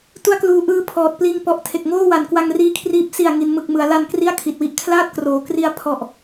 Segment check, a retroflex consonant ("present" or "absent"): absent